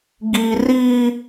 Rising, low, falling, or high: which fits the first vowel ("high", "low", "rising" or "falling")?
high